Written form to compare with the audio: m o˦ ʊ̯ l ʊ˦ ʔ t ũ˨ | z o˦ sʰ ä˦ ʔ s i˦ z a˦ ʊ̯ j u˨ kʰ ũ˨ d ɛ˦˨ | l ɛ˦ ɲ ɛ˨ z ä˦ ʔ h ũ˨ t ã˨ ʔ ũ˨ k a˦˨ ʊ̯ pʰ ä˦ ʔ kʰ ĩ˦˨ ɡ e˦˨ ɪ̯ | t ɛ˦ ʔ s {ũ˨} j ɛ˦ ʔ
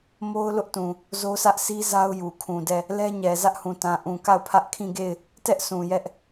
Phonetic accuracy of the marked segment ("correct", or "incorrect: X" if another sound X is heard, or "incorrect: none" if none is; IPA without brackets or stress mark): correct